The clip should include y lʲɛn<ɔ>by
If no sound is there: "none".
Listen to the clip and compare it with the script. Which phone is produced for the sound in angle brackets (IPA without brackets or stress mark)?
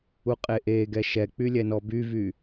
ɔ